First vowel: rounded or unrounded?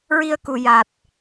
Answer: unrounded